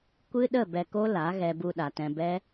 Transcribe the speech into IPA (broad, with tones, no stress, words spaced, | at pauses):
kʷɨ˦ɗə˦˨ bɛ˧ko˦la˨˦ ɣɛ˧bu˧ɗa˨tɛ̃˧ bɛ˦